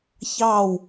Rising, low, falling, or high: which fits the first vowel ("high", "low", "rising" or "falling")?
falling